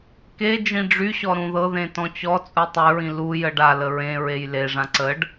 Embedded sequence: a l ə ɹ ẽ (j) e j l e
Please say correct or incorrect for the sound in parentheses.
incorrect